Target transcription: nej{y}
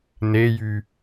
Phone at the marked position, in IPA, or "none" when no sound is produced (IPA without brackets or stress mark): y